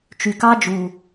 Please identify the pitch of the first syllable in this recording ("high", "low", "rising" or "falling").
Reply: low